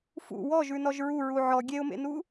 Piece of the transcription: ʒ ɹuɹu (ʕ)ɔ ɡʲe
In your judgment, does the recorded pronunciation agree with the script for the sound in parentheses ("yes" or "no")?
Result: yes